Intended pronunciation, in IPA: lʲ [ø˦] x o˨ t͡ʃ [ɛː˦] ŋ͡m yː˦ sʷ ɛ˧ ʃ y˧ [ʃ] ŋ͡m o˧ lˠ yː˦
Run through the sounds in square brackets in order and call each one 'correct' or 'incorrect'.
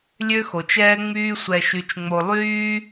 correct, correct, incorrect: t͡ʃ

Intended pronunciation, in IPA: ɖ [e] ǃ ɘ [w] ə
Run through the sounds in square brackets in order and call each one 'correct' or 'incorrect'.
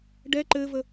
incorrect: ɛ, incorrect: v

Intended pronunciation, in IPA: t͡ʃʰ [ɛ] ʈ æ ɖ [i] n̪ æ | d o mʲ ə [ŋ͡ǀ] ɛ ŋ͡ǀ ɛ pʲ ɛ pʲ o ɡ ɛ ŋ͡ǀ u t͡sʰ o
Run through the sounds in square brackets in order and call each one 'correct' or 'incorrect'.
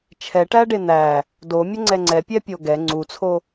correct, incorrect: e, correct

